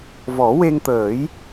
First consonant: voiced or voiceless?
voiced